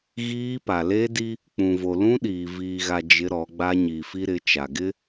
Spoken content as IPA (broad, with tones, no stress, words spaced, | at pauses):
ɣiː˦pa˨ le˦di˦ | k͡pũ˨vo˨lũ˦ɗiː˨ viː˨ɣa˨ d͡ʒɪ˦ɾɔ˨˦ɡ͡ba˦ ɲi˨fi˦ɾɪ˨˦t͡ʃa˨ ɡɪ˦